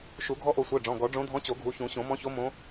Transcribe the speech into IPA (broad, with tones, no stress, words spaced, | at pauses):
ʃu˨˩˦ ɡʱɔ˧˥ʔo˨˩˦sʷɜ˩˧˩ ɖ͡ʐɔ̃˩˧˩ɡɔ˨˩˦ɖ͡ʐõ˧˥ dʱɔ̃˧˥t͡ɕo˨˩˦ɡʱu˩˧˩çũ˨˩˦ ɕõ˨˩˦mɔ̃˧˥ço˧˥ mõ˧˥